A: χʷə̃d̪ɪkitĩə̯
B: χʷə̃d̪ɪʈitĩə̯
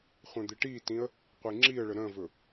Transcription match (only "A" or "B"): B